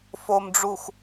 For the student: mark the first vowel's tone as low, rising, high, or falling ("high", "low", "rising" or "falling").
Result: low